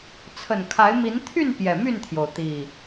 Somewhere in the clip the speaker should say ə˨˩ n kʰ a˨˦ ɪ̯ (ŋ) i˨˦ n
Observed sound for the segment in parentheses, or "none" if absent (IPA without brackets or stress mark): m